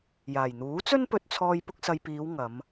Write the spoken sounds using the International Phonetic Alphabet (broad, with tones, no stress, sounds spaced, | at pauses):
j aː˨˩ j n̪ uː˨˥ t͡s ɵ˥ n p ɵ˧ t̚ t͡sʰ ɔː˧ j p ʊ˧ k̚ s ɐ˨ j p iː˨˧ w ŋ ɐ˨˧ m